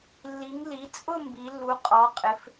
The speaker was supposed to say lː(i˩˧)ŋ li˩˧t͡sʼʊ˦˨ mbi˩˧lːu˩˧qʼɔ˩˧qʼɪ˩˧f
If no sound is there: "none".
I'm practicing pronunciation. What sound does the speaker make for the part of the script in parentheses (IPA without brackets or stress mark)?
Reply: i˩˧